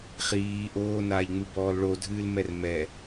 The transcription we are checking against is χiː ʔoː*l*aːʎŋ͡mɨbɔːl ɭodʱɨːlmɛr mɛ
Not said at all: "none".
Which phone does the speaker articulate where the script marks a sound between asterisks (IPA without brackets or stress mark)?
n